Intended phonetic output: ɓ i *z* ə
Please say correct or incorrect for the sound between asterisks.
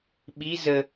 correct